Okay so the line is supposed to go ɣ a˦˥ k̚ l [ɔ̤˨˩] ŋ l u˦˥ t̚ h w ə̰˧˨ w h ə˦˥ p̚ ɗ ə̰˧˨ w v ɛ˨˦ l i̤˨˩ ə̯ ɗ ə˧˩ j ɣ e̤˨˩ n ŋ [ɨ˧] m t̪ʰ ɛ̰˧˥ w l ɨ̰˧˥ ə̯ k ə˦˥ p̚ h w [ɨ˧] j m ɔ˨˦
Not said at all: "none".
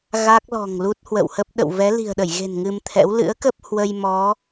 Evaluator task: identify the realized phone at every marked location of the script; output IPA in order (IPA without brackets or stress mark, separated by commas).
ɔ̤˨˩, ɨ˧, ə˧